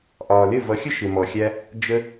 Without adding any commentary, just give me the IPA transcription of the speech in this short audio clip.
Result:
ʔ ɒː˨ l ɪ˦˨ v ʌ˨˦ xʲ ə˦ ʃ ɪ˨ m ɔ˨ xʲ æ˧ | d͡ʒ ə˧

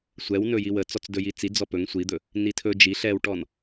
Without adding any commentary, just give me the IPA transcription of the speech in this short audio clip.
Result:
sʷ ɛ w n ɵ j i w ə t͡s ɔ t͡s d ɵ j i t͡s i d͡z ɔ p ɵ ŋ sʷ i d̪ ɵ | n i tʰ ɵ d͡ʒ i ɬ ɛ w ʈ ɔ n

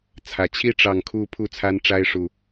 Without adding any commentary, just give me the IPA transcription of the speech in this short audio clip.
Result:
t͡sʰ ä˨˩ t͡ɕʰ i˥˨ ʈ͡ʂ ɑ˨˩ ŋ kʰ u˨˦ pʰ u˥˨ t͡sʰ a˦ n ʈ͡ʂ a˦ ɪ̯ ʂ u˨˩

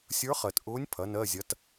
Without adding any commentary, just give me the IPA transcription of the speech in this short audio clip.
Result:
sʲ ə˞˧˥ χ ɜ˨˩ t ʔ ʊː˧˥ nʲ pʰ ɐ˩˥ n ɜ˧˥˧ zʲ ɐ˧˥ t

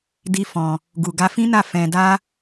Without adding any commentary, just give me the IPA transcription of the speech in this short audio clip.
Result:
d i˦ f ɔ̃˧ | ɡ u˨ ɡ a˧ f ĩ˦ n a˦˨ f ɛ̃˧ d a˦

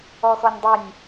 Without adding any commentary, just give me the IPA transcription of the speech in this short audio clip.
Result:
ɔ x ɔ nʲ dˤ ɪ nʲ

